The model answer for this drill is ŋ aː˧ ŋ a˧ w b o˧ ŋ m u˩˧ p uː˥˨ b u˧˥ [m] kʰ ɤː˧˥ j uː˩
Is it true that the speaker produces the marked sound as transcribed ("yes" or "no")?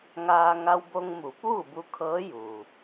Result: no